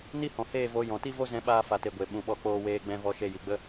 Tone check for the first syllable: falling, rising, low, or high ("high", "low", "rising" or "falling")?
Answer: high